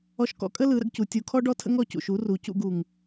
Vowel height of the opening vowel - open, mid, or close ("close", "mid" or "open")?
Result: mid